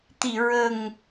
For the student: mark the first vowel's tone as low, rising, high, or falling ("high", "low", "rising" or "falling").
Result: low